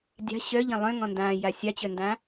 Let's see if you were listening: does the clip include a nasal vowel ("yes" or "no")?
yes